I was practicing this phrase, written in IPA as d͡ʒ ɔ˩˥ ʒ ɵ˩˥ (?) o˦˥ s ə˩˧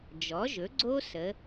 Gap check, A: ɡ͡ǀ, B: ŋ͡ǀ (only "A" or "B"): A